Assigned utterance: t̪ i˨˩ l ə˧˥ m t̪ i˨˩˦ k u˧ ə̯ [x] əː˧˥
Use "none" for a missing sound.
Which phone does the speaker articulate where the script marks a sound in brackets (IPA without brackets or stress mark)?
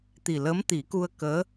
k